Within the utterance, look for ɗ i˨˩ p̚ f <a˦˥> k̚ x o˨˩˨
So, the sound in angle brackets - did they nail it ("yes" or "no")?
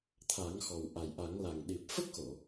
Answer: no